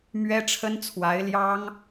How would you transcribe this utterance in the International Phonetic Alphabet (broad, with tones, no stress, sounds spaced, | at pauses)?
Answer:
m ɥ ɛ˥ ʈ͡ʂʰ ə˥ n t͡sʰ w a˧˥ ɪ̯ l j ɑ˥ ŋ